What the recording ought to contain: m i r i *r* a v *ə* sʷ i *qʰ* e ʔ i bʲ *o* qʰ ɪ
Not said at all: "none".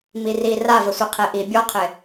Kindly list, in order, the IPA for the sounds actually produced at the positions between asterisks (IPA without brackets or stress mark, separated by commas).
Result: r, ə, qʰ, ɔ